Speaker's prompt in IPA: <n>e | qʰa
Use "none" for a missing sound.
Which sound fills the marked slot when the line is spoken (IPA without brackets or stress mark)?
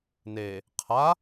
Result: n